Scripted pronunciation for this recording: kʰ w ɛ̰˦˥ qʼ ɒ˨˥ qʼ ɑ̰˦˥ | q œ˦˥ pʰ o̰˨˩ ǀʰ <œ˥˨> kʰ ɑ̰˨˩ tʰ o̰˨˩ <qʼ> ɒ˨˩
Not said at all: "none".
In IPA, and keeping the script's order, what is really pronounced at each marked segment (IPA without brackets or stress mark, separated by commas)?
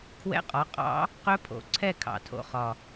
ɛ˥˨, χ